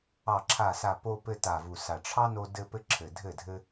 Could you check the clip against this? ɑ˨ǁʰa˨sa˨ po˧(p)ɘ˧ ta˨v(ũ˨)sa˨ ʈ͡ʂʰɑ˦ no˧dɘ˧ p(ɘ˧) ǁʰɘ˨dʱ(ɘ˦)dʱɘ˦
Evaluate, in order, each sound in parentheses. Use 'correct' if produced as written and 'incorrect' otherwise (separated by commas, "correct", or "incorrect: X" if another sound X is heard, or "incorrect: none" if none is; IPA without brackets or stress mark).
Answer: correct, incorrect: u˨, correct, incorrect: ɘ˦˨